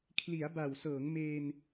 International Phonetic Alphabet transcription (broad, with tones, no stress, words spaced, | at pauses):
kʰli˩˦a̯ba˨˩wsɤː˩˦ŋ meː˧n